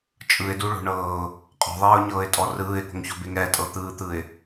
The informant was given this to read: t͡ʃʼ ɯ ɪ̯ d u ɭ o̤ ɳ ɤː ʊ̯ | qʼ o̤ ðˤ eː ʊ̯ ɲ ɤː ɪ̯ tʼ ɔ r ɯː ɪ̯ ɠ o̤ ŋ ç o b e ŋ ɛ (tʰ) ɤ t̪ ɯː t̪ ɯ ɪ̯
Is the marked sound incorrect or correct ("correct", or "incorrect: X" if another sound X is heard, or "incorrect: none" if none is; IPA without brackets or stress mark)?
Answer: incorrect: tʼ